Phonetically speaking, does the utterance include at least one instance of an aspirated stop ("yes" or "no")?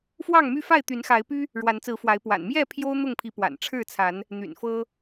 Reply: yes